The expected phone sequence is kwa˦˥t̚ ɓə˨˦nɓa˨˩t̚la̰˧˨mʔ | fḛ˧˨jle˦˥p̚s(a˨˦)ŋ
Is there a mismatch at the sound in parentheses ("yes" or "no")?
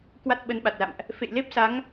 no